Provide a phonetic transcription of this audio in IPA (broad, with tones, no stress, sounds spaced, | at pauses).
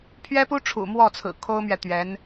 pʰ ɥ ɛ˥ p u˥ ʈ͡ʂʰ ṵ˨˩ m w ɔ˥˩ t͡sʰ ɹ̩˨˩ kʰ o˥ ʊ̯ m ɥ ɛ˨ t̪ ɥ ɛ˧˥ n